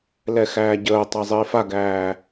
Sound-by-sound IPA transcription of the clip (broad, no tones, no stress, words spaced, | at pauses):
lɛxæːɟəːtˤa zˤiːfaɡæː